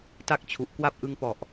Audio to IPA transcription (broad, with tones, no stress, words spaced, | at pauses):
ta˥˩k̚t͡ɕʰu˨˩ʔ kwa˥˩p̚ʔɯ˦˥ŋpɔ˨˩ʔ